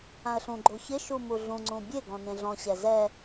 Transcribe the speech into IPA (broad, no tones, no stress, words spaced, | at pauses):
ãə̯ɬũɡ͡ǃo çɪʃu muɮũŋ͡ǀũ bʲeɡɔ̃ nẽɮɔ̃ɕɛ zɛ